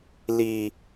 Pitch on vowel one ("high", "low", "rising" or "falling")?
low